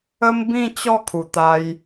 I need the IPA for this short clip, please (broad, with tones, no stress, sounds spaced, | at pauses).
ə˦ m b ĩ˥˧ t͡ɕ ɔ˥˧ kʰ u˨˩ t̪ a˧ j